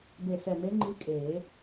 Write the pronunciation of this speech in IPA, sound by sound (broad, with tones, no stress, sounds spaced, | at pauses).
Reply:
b e˧˩ s ɛ˧˩ m e˧˥ ŋ͡ǃ i˧˥ kʼ eː˨˩˦